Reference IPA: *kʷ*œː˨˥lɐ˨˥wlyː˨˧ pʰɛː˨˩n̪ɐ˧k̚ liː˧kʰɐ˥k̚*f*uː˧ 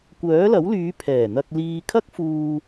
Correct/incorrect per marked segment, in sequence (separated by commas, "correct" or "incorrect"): correct, correct